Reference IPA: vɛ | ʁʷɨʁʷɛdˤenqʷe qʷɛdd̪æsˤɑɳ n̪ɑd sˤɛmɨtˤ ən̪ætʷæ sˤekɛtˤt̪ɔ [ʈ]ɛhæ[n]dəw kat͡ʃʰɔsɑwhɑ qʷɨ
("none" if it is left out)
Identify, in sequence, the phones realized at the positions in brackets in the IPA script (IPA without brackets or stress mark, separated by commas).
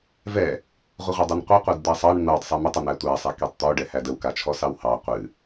ɖ, none